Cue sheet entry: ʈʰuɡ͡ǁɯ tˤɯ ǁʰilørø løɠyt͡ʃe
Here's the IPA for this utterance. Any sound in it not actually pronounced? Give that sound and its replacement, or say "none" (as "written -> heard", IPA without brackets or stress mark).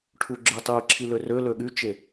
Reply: none